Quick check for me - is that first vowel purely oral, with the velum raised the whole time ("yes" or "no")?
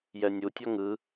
yes